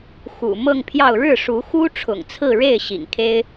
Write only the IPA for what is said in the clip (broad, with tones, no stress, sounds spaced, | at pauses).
x ṵ˨˩ m ɤ˥˧ ŋ pʰ j ɑ˥˧ ʊ̯ ɻ ɻ̩˥˩ ʂ u˧˥ x u˥ ʈ͡ʂʰ ʊ̰˨˩ ŋ t͡sʰ ɹ̩˥˧ ɻ e˥˩ ɪ̯ ɕ ḭ˨˩ ŋ kʰ e˥ ɪ̯